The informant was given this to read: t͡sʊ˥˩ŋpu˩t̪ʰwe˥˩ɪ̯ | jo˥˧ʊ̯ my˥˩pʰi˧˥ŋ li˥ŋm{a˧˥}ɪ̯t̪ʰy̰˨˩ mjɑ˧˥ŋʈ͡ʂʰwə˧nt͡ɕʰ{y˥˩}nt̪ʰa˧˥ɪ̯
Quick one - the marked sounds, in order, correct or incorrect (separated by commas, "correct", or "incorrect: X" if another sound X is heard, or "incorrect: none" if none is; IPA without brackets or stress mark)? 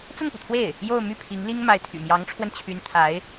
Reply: correct, incorrect: y˧˥